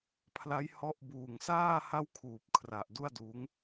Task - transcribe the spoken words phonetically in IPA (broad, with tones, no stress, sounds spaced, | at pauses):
pʰ l a˦˥ j h ɔ˦˥ ʔ b uː˨˩ ŋ s aː˥˩ h a˥˩ w kʰ uː˨˩ p̚ kʰ r a˨˩ ʔ d u˥˩ a̯ d uː˦˥ ŋ